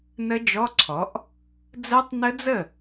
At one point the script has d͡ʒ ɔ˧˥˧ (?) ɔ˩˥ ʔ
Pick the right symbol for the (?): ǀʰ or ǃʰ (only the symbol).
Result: ǀʰ